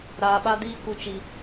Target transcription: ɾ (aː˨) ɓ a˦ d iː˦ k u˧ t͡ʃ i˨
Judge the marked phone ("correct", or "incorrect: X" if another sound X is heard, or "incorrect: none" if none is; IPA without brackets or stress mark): incorrect: aː˧